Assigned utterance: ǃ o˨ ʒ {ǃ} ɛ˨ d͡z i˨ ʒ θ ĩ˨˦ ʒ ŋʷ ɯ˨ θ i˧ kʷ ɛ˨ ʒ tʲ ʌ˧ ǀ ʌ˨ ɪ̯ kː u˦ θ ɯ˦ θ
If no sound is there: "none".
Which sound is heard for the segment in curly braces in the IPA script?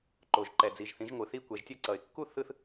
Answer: ǃ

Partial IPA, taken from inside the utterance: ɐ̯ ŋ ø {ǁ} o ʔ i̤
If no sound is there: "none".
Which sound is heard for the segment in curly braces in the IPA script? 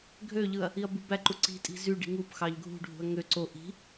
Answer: ǀ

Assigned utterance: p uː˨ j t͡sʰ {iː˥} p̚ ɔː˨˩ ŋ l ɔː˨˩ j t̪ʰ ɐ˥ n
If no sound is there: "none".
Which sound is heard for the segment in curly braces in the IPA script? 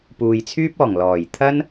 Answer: yː˥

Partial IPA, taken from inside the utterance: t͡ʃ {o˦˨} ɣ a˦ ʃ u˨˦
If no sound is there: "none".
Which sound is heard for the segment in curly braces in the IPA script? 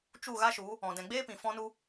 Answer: u˦˨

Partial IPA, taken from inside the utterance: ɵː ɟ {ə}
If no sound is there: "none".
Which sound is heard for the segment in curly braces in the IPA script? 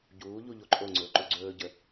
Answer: ə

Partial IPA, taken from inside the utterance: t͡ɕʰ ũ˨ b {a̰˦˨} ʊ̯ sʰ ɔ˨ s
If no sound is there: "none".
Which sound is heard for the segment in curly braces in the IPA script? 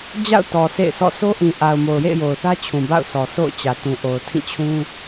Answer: a̰˦˨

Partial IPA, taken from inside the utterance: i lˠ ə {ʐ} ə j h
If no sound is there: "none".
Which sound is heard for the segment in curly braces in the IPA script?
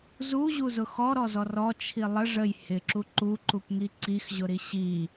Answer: ʐ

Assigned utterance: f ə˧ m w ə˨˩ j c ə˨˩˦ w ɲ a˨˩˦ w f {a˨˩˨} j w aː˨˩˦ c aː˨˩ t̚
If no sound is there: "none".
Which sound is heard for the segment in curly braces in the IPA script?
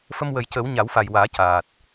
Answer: a˨˩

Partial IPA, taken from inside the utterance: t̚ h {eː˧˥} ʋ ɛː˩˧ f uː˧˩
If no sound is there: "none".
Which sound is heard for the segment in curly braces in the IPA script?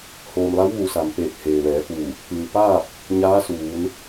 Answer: eː˩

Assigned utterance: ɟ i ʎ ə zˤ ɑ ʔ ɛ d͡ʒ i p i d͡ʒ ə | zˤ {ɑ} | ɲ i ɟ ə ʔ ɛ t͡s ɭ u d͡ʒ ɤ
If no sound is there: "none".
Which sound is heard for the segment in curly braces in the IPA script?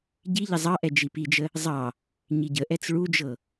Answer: ɑ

